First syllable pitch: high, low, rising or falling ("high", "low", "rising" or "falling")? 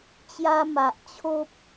high